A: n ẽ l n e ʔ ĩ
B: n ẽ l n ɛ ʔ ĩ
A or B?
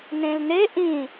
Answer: A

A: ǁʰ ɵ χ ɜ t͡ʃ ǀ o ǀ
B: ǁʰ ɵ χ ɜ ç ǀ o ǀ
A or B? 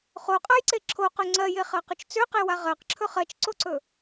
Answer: A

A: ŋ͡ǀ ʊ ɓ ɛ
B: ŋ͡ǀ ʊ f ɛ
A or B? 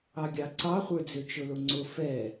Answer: B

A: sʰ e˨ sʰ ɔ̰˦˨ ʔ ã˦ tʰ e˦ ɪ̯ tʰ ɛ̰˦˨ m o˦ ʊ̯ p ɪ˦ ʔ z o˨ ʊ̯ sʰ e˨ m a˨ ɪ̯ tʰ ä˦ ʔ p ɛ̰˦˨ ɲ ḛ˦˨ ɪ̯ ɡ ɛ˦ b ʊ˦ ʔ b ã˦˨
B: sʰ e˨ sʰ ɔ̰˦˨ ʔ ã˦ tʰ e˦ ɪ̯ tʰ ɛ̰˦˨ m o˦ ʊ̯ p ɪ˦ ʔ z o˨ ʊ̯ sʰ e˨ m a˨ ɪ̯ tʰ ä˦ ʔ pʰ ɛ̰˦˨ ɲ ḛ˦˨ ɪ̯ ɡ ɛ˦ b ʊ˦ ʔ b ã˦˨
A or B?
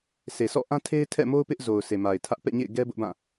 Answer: A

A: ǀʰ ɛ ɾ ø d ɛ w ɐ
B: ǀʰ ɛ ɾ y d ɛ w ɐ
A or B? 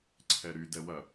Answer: B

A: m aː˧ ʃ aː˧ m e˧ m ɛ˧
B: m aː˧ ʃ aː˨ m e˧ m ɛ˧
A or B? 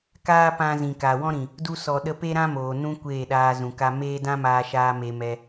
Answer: A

